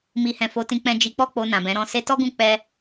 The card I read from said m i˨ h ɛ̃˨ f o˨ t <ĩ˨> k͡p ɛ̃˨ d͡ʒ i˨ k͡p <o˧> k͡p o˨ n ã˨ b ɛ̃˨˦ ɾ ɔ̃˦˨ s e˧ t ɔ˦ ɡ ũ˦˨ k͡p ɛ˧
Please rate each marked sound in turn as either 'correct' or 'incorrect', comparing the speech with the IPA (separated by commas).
correct, incorrect